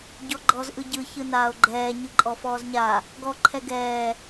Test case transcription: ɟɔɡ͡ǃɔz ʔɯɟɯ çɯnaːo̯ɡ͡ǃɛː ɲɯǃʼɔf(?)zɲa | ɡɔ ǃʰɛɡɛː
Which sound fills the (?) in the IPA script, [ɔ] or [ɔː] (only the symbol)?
ɔː